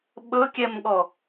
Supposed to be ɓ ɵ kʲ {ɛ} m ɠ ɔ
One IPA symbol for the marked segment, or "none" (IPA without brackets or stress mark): ɛ